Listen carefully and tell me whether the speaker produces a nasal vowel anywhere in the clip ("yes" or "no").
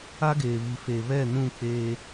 yes